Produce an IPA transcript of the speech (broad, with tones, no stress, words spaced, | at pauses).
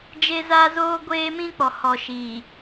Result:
d͡ʒe˦za˦zoː˦ ɡʷeː˦mĩ˦k͡pɔ˨ hɔ˨ʃiː˨